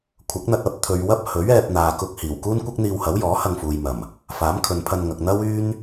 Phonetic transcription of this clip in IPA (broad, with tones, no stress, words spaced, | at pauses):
kʷʰɐ˨˥k̚n̪ɐ˧t̚ ɐ˨˥p̚ t̪ʰɵ˨ɥwɐ˥p̚ hɵ˨˥ɥɛː˧p̚n̪aː˨kʊ˧k̚ hiː˨˩w kuː˥nkʷɐ˥k̚n̪iː˧whɐ˨˥w jɔː˨˥hɐ˧ŋfuː˨jmɐ˨˩m | faː˨˥mkʰɵ˨npʰɐ˧nŋɐ˨k̚ n̪ɐ˥wyː˥n